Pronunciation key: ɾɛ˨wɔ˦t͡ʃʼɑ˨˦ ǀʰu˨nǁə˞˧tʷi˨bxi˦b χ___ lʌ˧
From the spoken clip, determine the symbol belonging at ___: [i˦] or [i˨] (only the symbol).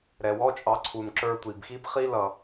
i˦